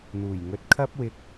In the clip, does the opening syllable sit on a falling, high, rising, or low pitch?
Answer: low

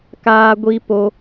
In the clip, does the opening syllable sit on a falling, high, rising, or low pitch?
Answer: high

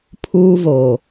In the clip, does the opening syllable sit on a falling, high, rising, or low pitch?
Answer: high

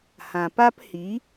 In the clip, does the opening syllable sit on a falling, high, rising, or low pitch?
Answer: low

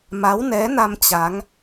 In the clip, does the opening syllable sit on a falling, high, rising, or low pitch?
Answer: rising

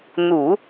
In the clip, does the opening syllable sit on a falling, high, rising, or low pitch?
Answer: low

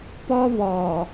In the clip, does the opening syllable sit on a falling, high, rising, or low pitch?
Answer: high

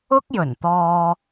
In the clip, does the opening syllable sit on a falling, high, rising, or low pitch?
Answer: high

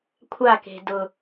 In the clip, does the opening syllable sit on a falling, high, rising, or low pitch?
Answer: falling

